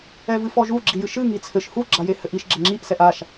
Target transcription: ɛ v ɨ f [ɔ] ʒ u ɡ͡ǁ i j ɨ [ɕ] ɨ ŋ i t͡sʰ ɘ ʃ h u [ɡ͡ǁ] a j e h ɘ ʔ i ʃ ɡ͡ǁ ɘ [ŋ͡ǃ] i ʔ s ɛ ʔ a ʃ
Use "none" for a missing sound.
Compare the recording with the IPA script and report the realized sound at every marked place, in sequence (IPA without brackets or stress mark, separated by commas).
ɔ, ʃ, ɡ͡ǁ, ŋ͡ǁ